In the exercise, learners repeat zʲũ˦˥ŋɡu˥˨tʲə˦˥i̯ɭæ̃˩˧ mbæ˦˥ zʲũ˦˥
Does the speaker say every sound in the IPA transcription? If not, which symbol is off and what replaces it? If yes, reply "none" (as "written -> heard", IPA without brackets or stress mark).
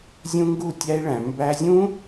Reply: ə˦˥ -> æ˦˥